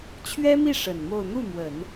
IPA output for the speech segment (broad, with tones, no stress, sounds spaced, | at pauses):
t͡ɕʰ ɥ ɛ˥ m i˥˩ ʂ ə˨˩ n m o˥˧ ʊ̯ n̪ u˥˩ m w ə˨˩˦ n